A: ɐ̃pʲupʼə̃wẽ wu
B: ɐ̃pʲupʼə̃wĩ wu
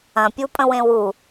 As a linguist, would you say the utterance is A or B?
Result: A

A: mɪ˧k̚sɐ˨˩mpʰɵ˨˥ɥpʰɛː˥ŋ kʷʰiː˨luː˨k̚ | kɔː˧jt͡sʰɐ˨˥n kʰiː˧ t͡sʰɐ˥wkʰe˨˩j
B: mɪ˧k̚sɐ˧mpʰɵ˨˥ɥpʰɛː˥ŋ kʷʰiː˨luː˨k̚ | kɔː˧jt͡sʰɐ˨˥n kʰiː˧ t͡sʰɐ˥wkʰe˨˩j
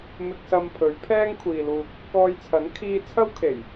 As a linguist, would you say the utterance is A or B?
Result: B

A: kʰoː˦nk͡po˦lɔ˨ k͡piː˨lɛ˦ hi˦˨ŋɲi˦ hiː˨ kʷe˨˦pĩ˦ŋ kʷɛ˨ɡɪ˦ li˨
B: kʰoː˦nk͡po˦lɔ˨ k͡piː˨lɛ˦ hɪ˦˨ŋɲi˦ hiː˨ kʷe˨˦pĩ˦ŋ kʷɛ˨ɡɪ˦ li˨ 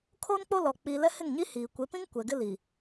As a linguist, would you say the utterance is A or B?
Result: B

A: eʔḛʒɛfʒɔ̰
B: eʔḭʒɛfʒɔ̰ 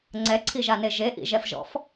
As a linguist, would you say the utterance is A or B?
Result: B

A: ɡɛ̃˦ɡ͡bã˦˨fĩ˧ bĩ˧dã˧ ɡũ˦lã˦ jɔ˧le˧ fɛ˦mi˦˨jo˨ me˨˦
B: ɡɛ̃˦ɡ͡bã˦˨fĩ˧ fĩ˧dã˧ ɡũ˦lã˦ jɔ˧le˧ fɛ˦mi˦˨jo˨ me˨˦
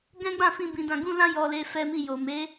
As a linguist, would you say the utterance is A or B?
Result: A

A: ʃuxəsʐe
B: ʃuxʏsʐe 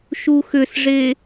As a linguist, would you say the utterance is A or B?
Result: B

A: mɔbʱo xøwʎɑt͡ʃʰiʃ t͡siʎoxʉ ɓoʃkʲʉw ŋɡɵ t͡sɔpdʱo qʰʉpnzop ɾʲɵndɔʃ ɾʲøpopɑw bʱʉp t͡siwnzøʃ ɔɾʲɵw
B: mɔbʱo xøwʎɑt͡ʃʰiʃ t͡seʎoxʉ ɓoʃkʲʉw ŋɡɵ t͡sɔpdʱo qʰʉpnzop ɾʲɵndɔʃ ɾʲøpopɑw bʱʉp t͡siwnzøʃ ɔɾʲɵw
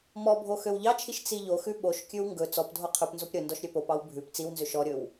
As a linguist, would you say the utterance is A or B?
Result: A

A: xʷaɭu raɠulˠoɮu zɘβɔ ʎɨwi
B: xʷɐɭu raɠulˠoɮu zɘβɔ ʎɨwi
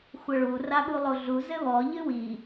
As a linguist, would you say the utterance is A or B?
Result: B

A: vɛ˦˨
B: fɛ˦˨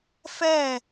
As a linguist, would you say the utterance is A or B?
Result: B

